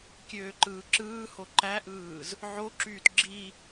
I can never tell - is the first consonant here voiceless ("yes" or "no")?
yes